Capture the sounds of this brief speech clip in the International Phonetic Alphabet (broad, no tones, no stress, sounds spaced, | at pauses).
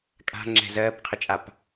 kʼ a̤ ŋ͡ǁ ɛ̤ z ɜː p qʰ ə t͡ʃʼ a p